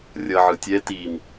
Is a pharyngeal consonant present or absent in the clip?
present